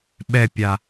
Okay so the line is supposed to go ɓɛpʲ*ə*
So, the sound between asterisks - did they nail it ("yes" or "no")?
no